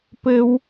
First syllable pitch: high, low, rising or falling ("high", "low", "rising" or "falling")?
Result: high